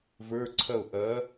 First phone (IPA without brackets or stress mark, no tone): v